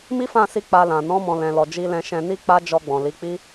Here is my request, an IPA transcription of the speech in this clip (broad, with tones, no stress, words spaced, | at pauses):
mi˦fã˦˨si˧ k͡pa˧lã˨ nɔ̃˨˦ mɔ̃˧ lɛ̃˨lɔ˨ d͡ʒi˧lɛ̃˧ʃɛ̃˧ ni˦k͡pa˦d͡ʒɔ˧ɡ͡bɔ̃˨ li˨˦k͡pi˦